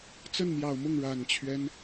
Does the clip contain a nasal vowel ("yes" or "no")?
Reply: no